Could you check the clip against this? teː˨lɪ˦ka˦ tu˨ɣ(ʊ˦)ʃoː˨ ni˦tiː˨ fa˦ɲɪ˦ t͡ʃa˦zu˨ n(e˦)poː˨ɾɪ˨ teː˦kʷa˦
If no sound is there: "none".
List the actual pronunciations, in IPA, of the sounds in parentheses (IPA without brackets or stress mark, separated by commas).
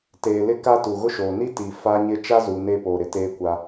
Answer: ʊ˦, e˦